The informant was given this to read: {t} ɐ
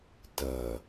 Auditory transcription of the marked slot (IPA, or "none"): t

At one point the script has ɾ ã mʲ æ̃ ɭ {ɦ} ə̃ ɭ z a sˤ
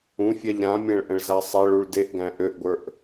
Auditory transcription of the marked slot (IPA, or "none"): ʔ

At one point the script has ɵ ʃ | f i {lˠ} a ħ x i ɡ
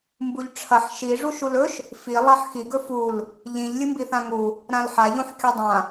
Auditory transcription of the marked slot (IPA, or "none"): lˠ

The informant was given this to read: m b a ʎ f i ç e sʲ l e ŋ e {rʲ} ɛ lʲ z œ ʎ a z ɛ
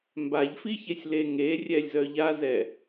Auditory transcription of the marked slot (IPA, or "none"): rʲ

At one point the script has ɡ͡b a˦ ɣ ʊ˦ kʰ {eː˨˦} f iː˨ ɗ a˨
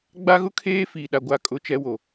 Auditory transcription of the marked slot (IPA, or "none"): eː˦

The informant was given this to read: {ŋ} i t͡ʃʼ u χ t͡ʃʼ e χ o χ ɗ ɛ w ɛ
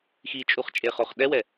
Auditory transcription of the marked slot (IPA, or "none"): x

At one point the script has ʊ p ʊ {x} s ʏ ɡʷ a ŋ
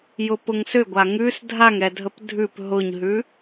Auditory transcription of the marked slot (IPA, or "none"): ŋ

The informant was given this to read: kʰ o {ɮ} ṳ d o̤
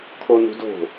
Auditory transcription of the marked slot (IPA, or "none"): n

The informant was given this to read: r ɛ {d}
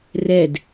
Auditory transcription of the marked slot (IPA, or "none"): d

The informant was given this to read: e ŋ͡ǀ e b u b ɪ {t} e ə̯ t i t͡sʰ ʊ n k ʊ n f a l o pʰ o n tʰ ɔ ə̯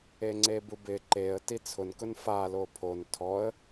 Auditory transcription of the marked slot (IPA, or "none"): ǃ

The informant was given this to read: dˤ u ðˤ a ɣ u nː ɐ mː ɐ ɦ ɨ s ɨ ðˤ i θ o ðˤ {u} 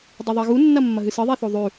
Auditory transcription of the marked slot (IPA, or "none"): ʉ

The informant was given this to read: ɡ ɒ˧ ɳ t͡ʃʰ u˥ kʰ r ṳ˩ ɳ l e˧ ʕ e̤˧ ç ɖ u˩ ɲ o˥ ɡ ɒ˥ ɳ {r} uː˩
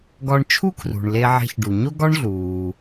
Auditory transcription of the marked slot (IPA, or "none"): ɮ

